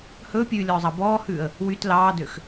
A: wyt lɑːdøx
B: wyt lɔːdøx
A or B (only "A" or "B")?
A